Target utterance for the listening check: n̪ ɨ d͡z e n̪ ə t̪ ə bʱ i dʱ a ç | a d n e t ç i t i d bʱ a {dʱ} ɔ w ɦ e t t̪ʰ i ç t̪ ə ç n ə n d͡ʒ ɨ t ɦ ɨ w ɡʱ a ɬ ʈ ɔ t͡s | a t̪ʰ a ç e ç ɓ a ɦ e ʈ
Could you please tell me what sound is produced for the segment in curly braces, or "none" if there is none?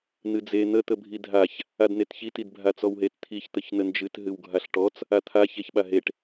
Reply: t͡s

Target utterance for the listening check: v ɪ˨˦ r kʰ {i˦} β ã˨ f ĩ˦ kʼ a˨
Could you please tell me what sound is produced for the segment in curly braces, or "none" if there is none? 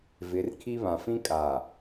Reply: i˦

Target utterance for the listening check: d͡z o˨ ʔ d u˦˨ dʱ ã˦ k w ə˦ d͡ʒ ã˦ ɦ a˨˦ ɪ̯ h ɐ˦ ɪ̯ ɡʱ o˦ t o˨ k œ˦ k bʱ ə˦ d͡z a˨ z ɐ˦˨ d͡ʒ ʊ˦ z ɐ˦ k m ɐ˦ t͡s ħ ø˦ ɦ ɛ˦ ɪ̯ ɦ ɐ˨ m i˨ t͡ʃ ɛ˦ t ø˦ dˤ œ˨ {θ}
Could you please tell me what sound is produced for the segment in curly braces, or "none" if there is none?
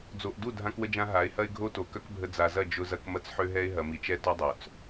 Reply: t͡s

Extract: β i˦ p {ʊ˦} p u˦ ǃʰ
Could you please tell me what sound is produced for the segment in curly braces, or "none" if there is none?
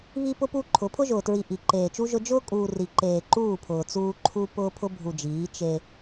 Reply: ʊ˦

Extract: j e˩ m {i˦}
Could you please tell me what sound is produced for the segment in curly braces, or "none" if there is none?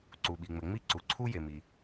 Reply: i˩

